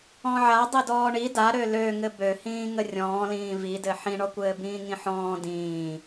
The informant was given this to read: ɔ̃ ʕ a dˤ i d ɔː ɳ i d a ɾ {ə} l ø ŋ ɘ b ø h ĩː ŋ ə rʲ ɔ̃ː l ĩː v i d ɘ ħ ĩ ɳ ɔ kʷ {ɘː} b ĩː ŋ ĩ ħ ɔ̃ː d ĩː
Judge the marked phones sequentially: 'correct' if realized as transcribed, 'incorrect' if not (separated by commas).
incorrect, correct